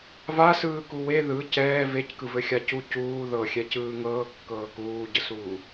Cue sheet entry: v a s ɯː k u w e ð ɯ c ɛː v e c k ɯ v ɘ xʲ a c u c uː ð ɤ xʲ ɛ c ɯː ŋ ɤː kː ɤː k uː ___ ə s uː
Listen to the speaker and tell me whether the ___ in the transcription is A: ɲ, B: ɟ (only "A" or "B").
B